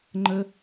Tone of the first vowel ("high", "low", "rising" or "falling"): high